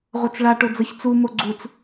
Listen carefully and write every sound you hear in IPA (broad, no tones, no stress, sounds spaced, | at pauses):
ʁʷ ɤ t͡s ɭ a ʈ o d͡z ɤ ç t͡s u m o ɡ͡ǀ u t͡s